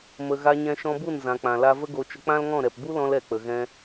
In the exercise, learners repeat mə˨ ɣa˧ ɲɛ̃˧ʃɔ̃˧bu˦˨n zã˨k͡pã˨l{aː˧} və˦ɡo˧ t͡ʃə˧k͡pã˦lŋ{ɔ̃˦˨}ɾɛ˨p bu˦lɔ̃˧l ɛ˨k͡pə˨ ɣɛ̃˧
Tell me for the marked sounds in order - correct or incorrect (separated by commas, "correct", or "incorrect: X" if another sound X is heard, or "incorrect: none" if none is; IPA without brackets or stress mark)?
incorrect: a˧, correct